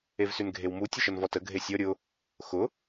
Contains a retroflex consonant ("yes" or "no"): no